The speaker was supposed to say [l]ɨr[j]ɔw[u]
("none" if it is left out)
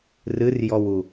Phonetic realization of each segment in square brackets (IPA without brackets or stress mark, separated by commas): r, j, u